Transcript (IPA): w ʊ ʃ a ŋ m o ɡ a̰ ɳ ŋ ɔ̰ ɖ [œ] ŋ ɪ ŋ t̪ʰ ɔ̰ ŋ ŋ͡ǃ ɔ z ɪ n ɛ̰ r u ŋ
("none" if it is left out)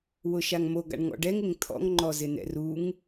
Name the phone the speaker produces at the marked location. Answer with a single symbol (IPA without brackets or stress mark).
ɛ